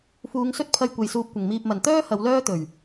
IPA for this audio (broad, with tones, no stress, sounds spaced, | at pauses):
f uː˨˧ ŋ s ɵ˥ t̚ pʰ ɐ˧ j kʷ e˨ j s uː˧ p̚ kʷ ɪ˨˩ ŋ m iː˨ p̚ m ɐ˨˩ n t̪ œː˥ h ɐ˨˧ w l œː˥ t̪ ɵ˨˩ ɥ